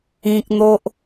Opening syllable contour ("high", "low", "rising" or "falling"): high